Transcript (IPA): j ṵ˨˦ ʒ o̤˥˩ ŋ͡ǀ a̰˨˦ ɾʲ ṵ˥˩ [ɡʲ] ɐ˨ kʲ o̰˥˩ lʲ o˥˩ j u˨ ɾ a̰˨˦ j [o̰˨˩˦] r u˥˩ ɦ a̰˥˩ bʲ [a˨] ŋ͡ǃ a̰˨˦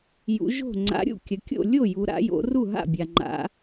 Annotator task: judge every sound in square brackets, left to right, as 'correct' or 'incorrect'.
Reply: incorrect: kʲ, incorrect: o̰˨˦, correct

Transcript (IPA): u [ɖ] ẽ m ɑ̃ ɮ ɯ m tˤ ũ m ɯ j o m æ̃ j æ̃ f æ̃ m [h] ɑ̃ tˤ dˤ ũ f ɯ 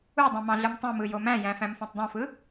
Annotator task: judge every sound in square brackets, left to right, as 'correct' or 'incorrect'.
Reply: incorrect: dˤ, incorrect: f

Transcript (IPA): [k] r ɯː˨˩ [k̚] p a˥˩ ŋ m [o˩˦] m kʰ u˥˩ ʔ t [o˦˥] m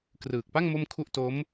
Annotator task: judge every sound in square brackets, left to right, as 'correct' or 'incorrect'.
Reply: correct, correct, incorrect: o˥˩, correct

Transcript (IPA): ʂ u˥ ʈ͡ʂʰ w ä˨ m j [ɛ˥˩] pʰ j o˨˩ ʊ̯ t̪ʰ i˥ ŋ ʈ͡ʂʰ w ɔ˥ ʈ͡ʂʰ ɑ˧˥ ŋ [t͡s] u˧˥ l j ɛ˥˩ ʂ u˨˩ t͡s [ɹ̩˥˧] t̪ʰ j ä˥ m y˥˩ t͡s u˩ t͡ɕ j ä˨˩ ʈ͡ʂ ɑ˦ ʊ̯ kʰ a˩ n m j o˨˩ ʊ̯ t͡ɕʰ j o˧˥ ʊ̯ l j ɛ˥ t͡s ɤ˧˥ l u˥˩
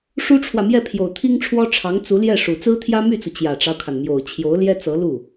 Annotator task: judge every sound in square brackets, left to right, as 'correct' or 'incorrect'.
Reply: correct, correct, incorrect: ɹ̩˥

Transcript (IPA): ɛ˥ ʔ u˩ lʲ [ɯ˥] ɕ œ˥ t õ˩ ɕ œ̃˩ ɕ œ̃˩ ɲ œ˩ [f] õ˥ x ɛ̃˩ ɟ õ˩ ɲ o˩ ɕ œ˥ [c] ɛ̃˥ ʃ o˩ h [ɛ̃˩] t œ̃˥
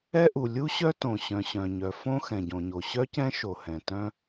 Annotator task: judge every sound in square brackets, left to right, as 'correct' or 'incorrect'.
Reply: incorrect: u˥, correct, correct, correct

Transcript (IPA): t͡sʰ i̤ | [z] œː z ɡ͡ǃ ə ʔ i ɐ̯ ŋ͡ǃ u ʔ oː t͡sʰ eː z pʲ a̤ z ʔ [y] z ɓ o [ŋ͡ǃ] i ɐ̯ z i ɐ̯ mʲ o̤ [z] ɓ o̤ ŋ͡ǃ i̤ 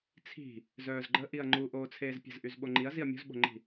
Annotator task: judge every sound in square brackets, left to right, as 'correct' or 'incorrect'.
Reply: correct, correct, correct, correct

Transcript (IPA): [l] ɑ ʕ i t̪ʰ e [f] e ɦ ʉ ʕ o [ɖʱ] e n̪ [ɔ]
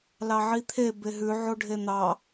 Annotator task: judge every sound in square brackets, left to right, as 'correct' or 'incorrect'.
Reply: correct, incorrect: b, correct, incorrect: ɑ

